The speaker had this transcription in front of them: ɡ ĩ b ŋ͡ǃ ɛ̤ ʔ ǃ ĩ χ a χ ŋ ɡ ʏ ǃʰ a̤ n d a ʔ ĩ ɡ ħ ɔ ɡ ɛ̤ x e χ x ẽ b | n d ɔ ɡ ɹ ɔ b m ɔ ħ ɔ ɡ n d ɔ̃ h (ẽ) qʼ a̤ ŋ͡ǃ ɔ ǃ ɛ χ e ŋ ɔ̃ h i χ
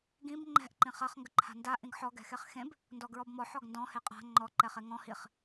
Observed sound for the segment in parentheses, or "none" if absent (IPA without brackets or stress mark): e